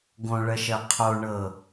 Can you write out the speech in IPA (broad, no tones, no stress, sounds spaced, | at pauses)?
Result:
ɡ õ ɭ ɜ ʃ ɜ qʰ o ɳ ɤ